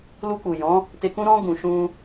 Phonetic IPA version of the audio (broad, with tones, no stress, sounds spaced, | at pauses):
l u˧ k͡p u˨ j ɔ̃˨˦ | t e˧ k ũ˦ ɾ ɔ̃˦ ɡ ũ˧ ʃ ũ˦